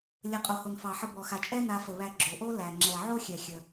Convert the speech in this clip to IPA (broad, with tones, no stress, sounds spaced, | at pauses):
lʲ ə˩ qʼ o˩ h o˩ n f ɑ˩ ħ ə˨ b ɔ˩ x a˩ t͡ʃʼ ɛ˥ n a˨ f ə˩ β æ˨ ɡ͡ǁ o˩ ʔ o˥ l æ˩ ŋ͡ǁ ɛ˩ ʕ o˥ xʲ ɛ˩ xʲ ə˩